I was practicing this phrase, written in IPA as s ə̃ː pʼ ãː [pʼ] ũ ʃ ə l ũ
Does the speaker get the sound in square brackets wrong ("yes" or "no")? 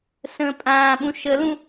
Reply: yes